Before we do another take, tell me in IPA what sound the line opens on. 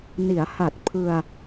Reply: n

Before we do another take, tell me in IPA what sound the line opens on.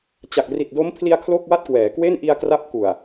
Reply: t͡ɕ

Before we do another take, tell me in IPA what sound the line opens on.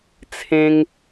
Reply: t͡sʰ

